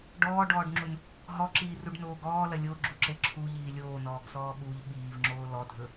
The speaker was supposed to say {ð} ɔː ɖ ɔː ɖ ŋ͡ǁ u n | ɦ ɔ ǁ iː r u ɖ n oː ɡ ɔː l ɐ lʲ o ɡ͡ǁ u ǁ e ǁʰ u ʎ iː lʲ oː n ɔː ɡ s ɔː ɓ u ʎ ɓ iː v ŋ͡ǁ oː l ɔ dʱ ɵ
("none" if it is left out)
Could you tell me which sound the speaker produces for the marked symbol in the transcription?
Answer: ɖ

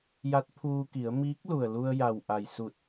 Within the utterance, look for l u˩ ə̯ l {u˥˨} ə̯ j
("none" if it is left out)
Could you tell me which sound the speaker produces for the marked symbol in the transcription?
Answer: u˧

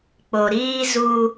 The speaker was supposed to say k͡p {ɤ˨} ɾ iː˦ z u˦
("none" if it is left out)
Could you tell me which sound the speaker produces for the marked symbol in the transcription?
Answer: o˨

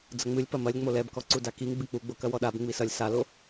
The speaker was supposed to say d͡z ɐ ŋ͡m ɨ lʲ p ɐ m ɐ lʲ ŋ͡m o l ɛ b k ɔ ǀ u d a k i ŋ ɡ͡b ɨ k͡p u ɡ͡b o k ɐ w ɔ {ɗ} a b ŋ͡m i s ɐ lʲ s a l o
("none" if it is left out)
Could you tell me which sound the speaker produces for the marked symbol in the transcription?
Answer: ɗ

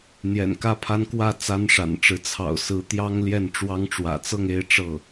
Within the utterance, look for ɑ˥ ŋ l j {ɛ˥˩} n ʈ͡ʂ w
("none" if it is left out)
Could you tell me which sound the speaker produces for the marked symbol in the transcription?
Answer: ɛ˥˩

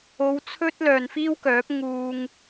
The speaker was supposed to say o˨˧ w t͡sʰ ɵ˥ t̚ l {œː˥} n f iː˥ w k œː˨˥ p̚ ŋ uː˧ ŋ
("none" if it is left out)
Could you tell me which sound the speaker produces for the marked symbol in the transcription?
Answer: œː˨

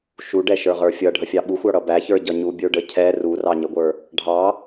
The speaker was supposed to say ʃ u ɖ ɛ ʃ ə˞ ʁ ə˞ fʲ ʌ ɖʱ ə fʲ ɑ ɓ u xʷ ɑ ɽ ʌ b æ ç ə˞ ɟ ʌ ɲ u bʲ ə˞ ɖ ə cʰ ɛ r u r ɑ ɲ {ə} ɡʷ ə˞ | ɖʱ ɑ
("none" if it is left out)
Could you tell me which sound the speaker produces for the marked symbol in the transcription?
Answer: ə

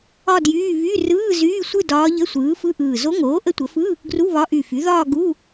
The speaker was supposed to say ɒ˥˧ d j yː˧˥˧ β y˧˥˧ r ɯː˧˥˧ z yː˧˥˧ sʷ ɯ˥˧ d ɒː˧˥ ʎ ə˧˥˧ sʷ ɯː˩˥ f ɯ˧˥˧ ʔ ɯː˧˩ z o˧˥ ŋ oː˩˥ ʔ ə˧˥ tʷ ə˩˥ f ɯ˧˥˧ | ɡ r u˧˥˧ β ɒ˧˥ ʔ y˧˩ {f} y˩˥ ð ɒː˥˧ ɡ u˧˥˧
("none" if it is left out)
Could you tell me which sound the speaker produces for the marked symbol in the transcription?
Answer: f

